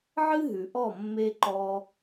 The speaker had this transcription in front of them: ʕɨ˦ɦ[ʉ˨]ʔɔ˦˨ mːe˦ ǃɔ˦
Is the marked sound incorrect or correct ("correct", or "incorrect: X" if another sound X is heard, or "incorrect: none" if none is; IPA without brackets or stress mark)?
correct